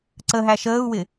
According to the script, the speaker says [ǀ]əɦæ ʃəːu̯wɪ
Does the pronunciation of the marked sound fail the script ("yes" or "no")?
no